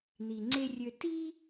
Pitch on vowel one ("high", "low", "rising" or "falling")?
low